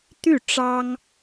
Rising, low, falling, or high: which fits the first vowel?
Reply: falling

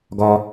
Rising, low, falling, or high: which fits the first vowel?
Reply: high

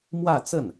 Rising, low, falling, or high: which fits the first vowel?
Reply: falling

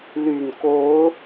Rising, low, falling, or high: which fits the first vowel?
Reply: low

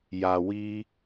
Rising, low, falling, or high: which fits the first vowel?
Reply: low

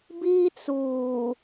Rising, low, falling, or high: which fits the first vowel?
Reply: high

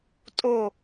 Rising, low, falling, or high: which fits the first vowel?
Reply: falling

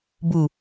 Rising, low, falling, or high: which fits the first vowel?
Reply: low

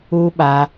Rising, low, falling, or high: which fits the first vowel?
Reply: high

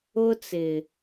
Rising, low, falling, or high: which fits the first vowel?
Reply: high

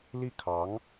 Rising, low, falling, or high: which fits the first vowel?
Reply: falling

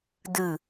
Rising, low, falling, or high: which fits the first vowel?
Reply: falling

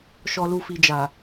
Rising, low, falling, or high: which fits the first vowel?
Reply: low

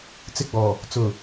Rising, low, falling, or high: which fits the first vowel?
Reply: high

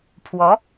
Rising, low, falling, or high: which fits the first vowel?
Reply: rising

